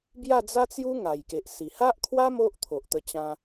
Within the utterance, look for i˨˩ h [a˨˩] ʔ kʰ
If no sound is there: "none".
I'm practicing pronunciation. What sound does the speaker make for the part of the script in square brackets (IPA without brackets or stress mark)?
a˦